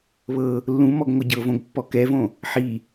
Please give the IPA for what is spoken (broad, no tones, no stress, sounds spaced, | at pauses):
β ɤ | lː ũ m ɔ ɡ ŋʷ ɤ ɟ ɤ v õ ɡ pː ɔ k ɛ v õ | ħ i